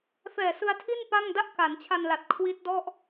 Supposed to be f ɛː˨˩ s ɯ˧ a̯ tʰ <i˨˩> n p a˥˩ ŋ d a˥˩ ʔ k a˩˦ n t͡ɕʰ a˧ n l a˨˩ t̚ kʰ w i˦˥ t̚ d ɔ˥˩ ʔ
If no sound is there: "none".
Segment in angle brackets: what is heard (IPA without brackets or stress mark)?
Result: i˥˩